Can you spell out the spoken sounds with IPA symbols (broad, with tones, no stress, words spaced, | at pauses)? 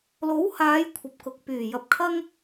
lo˨˥whaː˨˧j kʷʰɐ˨p̚kʊ˨k̚pyː˨˩ jɐ˨˥p̚kʰɐ˥ŋ